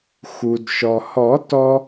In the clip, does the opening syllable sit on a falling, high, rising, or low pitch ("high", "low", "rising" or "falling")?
low